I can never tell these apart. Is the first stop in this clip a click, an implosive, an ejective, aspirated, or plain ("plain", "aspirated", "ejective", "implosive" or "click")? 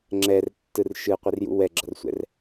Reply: click